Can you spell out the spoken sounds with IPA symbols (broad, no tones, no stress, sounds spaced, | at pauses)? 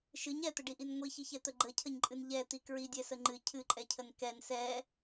ʃ ɨ ɲ ɛ t̪ ə ɖ i ʔ i n ŋʷ i ç i ç ɛ t̪ ə ɡ͡ǃ ə cʰ ə ɲ ǃʼ ɨ n ʎ ɛ t̪ i k ɹ i dʲ ɛ s ə ŋ͡ǃ ɨ cʰ ɨ ǃʼ ɛ cʰ ə n k ɛ n s ɛ